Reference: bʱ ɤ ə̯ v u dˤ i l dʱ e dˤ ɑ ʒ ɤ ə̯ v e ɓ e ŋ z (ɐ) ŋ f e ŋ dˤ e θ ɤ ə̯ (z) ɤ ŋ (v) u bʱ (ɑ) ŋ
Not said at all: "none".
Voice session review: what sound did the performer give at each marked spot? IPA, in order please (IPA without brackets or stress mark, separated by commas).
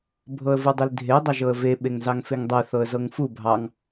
ɑ, z, f, ɑ